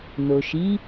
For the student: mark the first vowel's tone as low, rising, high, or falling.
low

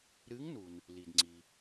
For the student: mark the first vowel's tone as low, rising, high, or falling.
rising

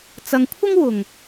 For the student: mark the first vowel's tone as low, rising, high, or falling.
low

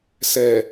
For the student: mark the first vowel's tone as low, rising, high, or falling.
low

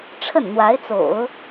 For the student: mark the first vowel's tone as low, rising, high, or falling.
falling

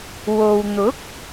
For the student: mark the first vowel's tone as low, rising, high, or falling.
low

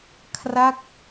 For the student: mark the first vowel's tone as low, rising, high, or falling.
falling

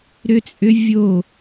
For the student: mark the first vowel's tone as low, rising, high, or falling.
high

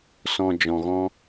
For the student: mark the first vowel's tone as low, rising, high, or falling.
low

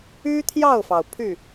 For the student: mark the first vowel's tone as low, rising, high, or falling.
high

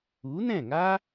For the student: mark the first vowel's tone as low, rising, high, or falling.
rising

